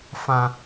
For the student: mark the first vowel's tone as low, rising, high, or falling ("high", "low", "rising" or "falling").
low